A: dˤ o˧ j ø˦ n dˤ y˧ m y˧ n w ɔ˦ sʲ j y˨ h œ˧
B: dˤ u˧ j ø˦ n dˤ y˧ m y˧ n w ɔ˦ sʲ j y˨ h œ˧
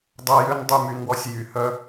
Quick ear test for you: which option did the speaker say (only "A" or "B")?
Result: A